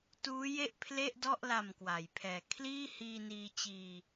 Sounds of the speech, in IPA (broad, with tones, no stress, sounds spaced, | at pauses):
t uː˦˥ j e˥˩ ʔ pʰ l e˥˩ ʔ d ɔ˥˩ ʔ l a˨˩ m k w a˩˦ j pʰ ɛː˨˩ kʰ l iː˥˩ h iː˧ n iː˧ t͡ɕ iː˧